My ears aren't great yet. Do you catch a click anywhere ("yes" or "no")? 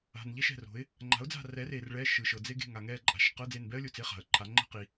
yes